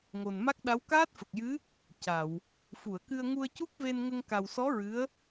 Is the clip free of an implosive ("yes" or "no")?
no